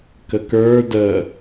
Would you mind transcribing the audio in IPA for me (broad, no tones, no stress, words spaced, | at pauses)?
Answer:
kəkə˞ də